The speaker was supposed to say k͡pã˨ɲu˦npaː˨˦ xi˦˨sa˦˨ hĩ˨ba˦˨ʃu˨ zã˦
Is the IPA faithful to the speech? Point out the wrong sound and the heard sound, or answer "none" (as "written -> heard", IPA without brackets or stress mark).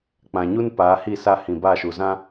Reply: x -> h